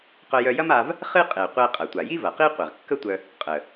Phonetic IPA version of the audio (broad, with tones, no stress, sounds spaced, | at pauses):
q œ˧ j œ˧ j ɐ˥ m a˧ v | χ ɨ˥ qʼ e˩ qʷ e˧ qʼ ɐ˩ tʷ a˩ j i˥ v ɐ˩ q i˥ qʷ e˩ ʁ kː ə˥ tʷ œ˧ | qʼ ə˩